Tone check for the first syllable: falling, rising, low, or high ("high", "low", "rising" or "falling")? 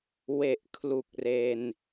low